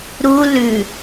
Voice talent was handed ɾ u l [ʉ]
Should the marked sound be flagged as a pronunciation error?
no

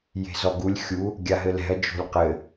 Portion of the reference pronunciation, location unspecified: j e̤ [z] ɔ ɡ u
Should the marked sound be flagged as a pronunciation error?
no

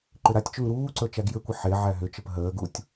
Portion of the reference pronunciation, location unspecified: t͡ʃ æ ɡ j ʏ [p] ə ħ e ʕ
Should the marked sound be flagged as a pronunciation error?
yes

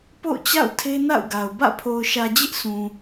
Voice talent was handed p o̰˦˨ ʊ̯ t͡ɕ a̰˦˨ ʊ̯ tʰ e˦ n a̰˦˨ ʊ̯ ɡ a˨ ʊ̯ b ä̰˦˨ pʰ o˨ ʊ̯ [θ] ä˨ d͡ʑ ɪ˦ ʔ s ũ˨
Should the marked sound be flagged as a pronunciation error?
yes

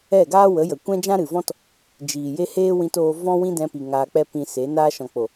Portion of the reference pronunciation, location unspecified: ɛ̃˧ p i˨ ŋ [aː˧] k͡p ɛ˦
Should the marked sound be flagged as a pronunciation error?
no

